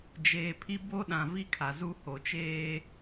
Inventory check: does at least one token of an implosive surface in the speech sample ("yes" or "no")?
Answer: yes